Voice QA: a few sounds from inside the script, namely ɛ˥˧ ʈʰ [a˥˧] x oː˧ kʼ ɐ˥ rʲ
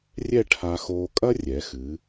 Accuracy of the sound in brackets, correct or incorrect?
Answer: incorrect